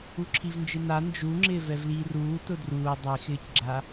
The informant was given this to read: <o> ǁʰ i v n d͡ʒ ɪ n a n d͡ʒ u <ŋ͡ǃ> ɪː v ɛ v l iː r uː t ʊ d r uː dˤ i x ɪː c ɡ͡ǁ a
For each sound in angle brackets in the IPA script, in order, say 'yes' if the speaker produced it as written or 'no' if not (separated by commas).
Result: no, no